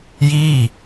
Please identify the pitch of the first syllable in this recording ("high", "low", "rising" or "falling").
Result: falling